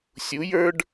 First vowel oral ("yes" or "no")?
yes